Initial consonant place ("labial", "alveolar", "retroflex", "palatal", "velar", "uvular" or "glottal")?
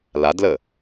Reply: alveolar